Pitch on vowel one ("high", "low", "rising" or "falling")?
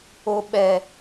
high